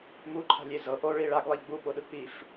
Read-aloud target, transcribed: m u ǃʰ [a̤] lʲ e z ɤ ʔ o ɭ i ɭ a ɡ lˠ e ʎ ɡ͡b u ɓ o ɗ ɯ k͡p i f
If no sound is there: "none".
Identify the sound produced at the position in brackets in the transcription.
a̤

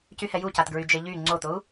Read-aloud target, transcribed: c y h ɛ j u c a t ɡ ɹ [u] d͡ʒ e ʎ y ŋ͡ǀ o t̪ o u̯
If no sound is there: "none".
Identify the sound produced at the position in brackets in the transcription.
y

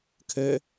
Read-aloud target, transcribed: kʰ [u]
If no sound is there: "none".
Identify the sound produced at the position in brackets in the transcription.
ø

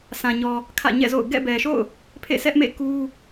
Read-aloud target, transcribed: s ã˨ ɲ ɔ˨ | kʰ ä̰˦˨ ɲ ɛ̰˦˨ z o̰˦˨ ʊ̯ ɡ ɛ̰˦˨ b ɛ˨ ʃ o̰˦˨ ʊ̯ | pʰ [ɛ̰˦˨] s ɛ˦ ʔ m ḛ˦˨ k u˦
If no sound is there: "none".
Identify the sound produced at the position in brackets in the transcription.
ḛ˦˨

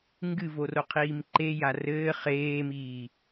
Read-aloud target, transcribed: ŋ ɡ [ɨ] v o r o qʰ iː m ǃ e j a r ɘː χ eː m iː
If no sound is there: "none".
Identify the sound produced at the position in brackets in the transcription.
ɨ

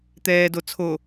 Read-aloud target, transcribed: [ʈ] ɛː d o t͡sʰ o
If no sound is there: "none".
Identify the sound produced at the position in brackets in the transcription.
t̪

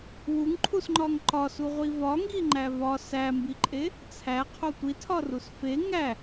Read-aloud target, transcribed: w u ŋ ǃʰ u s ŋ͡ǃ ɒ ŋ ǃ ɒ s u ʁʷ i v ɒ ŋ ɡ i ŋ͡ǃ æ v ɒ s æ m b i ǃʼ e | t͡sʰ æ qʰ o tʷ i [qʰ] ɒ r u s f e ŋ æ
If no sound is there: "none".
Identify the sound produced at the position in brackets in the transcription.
tʰ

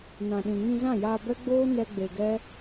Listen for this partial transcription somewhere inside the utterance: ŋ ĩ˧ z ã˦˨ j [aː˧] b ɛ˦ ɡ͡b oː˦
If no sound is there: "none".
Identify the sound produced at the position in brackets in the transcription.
aː˧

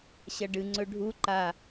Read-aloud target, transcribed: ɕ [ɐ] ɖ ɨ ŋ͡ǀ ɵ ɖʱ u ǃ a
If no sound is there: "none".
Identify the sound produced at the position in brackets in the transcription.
ɐ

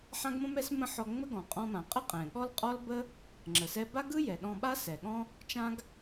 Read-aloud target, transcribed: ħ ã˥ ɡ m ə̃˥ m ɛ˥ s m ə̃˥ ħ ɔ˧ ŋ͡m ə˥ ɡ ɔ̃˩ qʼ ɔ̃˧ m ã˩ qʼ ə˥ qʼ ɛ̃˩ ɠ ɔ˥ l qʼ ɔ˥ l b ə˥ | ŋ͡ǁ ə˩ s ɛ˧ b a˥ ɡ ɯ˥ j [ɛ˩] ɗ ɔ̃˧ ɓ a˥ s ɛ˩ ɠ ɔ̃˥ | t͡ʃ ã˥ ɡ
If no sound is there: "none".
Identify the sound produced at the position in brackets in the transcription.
ɛ˩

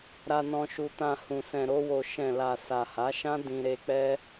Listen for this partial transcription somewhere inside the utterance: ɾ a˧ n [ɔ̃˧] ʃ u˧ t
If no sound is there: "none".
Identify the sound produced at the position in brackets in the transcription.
ɔ̃˧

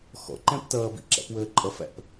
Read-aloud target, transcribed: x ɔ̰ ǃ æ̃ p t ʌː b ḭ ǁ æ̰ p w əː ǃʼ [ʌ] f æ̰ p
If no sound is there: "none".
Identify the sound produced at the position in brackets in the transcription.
ʌ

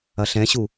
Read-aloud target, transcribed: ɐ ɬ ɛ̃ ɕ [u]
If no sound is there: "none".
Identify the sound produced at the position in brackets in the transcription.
u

